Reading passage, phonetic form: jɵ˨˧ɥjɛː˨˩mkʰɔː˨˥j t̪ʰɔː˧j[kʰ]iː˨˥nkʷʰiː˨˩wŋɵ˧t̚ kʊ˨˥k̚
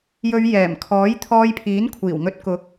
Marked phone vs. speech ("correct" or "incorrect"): incorrect